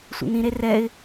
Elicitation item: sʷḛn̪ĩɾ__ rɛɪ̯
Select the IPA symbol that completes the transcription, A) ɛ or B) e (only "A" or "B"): B